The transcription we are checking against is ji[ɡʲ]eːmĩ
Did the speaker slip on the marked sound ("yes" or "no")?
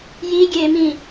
no